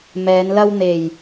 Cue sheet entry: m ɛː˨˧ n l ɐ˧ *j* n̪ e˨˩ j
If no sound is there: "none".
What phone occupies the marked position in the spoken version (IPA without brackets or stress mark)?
w